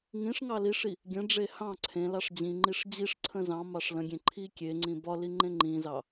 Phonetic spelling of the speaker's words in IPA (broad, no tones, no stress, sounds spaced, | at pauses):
ŋ ĩ ʂ ŋ ɑ l i ʂ i | ɡʲ ə̃ ɖ͡ʐ e h ɑ̃ ǀʰ ẽ l ɑ ʂ d͡ʑ ĩ ŋ͡ǃ i ʂ d͡ʑ i ʂ ǀʰ ə̃ z ɑ̃ m ɑ ʂ l ə̃ ɡʲ ẽ ǃʰ i kʲ e ŋ͡ǀ ĩ b ɒ l i ŋ͡ǃ ẽ ŋ͡ǃ ĩ z ɑ